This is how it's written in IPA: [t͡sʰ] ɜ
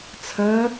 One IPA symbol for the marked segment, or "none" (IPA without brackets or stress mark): t͡sʰ